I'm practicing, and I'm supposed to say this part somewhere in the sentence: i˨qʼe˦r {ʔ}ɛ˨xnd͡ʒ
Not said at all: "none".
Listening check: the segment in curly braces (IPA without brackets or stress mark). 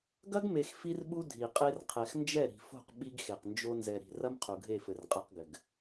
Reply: qʰ